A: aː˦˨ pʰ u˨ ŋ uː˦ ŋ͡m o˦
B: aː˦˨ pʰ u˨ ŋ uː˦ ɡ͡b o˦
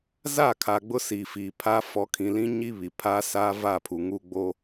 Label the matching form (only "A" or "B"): B